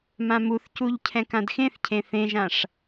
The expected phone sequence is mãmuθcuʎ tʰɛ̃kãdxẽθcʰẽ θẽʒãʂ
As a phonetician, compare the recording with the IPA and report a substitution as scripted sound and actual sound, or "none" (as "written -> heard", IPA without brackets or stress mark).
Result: tʰ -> cʰ